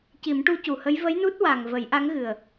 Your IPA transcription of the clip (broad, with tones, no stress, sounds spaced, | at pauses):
c i˨˩˦ m ʈ u˧ c u˨˩ h ə˧˥ j v ə˧˥ j n u˦˥ t̚ w a˨˩ ŋ v ə˨˩˦ j ʔ a˧˥ ŋ ɣ ɨ˨˩ ə̯